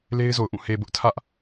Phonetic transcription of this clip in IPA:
l e˦ ɪ̯ z o˨ ʊ̯ ʔ ũ˦˨ h e˨ b ʊ˦ ʔ tʰ ä˦ ʔ

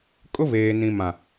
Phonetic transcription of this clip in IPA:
kʼ ʊ˦ β eː˨ n ĩ˨ m ã˨

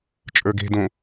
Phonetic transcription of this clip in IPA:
t͡ʃʼ ə˞ ɡ e̤ d õ

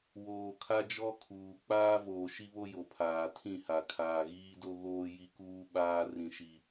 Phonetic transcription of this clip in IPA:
w oː˨ kʰ a˦ d͡ʒ ɔ˦ kʰ uː˨ k͡p aː˦ v oː˨ ʃ i˦ β o˦ j o˨ pʰ aː˨ tʰ ĩ˦˨ h a˨ kʰ aː˨ ɣ iː˦ d o˦ ɣ oː˦ j i˦ k uː˦ ɓ aː˦ r ĩ˦ ʃ i˦

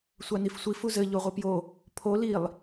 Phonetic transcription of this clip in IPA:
sʷ a n i f sʷ i f u z ɘ ʎ o ʁʷ ɨ p j o | pʰ o l i lˠ

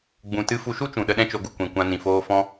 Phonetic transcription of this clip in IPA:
ɡ͡b ũ˨ t ɨ˧ f u˧ ʃ u˦ t͡ʃ ũ˨ ɗ ə˧ ɗ ɛ̃˦ t͡ʃ o˧ ɡ u˧ kʷ ĩ˨ kʷ ã˧ n ĩ˨ f oː˦ f ɔ̃˧

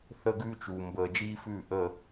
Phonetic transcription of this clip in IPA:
θ ə˦ ɡ ʉː˦ t͡ʃ uː˩ m b əː˩ d͡ʒ iː˦ f ʉː˧˩ ʔ əː˧˩

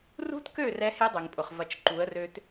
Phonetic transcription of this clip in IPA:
r ṳ˦ t k ø˦˨ r ɛ˦ h e˦ dˤ e˨ ŋ pʼ ʊ˨ χ v ɐ˨ t͡ʃ ǃ u˨˦ ə̯ r ø˦ t

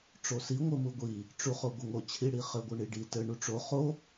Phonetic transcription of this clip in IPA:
ʈ͡ʂ o s i ŋʷ ɘ m u ɡʷ i | ʈ͡ʂ u χ o ɡʷ ɘ ŋ o t͡ɕʰ i ɽ i χ ɘ ɡʷ ɘ ɳ i ɖ i t ɘ ɳ u ʈ͡ʂ o χ o

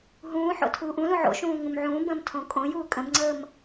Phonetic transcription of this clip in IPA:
ɦ ũː ħ o̰ tʰ uː ʔ ũ l ũ ʕ o̰ ʃ ũː ŋ ũ m ʕ ũː b ə̃ː m tʰ õ kʼ õ j uː kʼ ə̃ b ŋ͡ǀ əː m

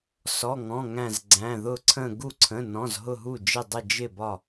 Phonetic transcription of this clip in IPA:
s ɔ˩˧˩ ŋ ɔ̃˩˧˩ ŋ æ̃˧˩ z ɡ͡ǀ æ̃˩˧˩ ð ʊ˧˩ ǀʰ ə̃˧˩ ɡ u˧˩ ǀʰ ə̃˩˧˩ n ɔ̃˩˧˩ z ɦ ʊ˧˩ ɦ u˧˩ d͡ʒ ɪ˧˩ dˤ ə˧˩ d͡ʒ ɪ˧˩ b ɒ˧˩

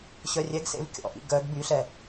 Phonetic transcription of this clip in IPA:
ɕ œ rʲ ɛ ɡ s ḛ v kʲ ɔ̰ ʔ ḭ ɡ œ ɡ b y ɬ ɛ

